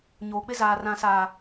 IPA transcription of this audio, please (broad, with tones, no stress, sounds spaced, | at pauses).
ɲ oː˨ k͡p ɪ˦ z aː˨ r ã˨ s aː˨